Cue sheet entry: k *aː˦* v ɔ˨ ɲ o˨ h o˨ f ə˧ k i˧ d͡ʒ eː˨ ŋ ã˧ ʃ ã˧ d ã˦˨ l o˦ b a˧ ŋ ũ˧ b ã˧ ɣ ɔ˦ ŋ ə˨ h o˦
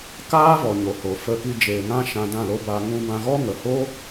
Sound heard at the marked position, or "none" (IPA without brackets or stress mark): aː˦